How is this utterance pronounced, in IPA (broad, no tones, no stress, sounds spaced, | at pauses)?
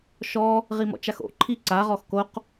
ʃ ɔ | ʁ i m ɔ̰ t͡ʃ a x o̰ ǃʰ i ǀ a ʁ ɔ x k o q